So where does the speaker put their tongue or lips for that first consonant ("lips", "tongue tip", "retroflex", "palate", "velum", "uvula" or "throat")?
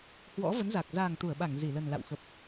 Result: throat